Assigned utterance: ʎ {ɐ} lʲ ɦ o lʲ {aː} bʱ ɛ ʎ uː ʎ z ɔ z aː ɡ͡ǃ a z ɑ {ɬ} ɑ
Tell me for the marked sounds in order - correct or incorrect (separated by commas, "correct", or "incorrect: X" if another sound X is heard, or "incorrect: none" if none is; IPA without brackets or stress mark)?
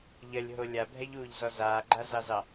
correct, incorrect: a, incorrect: z